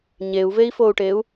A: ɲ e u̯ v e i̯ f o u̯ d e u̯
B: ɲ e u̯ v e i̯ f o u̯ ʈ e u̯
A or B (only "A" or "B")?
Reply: B